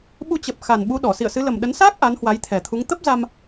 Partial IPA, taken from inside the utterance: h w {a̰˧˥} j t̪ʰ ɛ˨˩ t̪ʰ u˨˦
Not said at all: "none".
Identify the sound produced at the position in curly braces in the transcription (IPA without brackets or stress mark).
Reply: a˨˦